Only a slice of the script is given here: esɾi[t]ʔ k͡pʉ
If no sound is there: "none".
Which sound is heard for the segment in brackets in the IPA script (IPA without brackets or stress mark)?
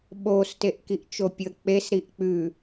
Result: none